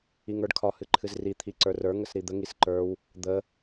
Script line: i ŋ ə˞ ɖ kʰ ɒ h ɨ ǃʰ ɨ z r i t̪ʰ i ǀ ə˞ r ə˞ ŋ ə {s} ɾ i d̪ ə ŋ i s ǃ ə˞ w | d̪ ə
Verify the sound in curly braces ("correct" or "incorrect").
correct